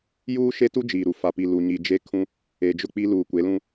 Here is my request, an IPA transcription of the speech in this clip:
juː˦ʃe˦tu˦ d͡ʒiː˨ɾu˨ fa˨pi˨ lu˨ ɲi˨ d͡ʒe˦kʰũ˦ | e˨d͡ʒʊ˦˨ k͡pi˦ luː˨ kʷe˨˦lũ˦

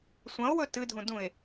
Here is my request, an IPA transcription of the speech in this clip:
sʷɐ̃o̯wɵ tɨdʱũdũe̯

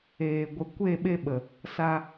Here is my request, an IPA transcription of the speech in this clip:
eː˨ ɡʷə˨ kʷe˦˨ ɓe˧ɓə˨ | sa˧

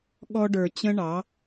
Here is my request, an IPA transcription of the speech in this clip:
ɠɔ˧ɖə˞˨t͡ɕə̃˧ ɳɑ˨˦

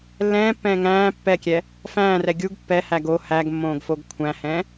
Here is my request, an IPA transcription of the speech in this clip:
lːɛ̃ːpːɛ̃ː ŋæ̃ː pːɛkʲɛ | fæ̃ːrɛ ɡʲuɡ pːɛhæ ɡo hæɡmːõːɡfoɡ kʷʰæ̃hɛ̃

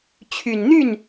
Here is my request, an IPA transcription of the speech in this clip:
t͡ɕʰy˨˩n n̪y˥˩n

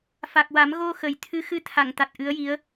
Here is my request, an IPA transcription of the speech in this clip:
fa˨˩k̚wa˨˩˦m ɣo˧ xə˨˩j t̪ʰɨ˧˥xɨ˧˥t̪ʰa˨˩˨ŋ t̪a˨˩t̚ʔɨ˧˥ə̯ji˧˥ə̯

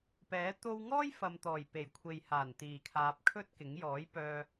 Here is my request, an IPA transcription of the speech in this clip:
pɛː˨˥ t̪o˧w ŋɔː˥j fɐ˨mt̪ɔː˨˩j pe˨˩jkʷʰe˨jhaː˨˩n t̪iː˨˩kʰaː˨p̚ kʰɵ˥t̚kɪ˨˥ŋ jɔː˨˥jpœː˧

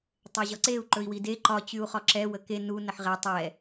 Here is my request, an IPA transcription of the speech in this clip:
tˤɛʑɒǀeu̯ ǃɵi̯wide ǃɒ t͡ɕyu̯χɒǁɛ wəke nu nəħʁɛ tˤɛ

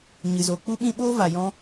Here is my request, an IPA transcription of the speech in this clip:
ɲɨ˨zoː˨k͡pu˦ɓĩ˦ ɓoː˦va˨jɔ̃˧

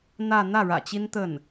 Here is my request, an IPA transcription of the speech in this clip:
n̪ä˥˧ n̪ä˥˩ɻä̰˨˩ t͡ɕi˥nt̪ə˥˩n

